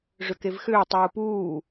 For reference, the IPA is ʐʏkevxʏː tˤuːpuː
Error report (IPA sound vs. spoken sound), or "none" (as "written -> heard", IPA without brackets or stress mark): none